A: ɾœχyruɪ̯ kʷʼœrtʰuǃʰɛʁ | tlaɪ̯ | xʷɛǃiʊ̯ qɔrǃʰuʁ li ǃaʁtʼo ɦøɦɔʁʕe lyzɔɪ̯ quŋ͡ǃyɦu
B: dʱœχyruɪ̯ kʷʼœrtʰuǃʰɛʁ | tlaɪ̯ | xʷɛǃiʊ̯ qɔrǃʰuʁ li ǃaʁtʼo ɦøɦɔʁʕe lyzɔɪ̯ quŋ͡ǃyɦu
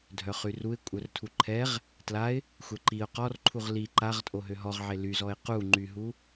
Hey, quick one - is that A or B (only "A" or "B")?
B